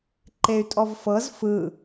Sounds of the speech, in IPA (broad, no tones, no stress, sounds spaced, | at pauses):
ǃ e y̯ tʼ ɔ v f ɤ z f ɯ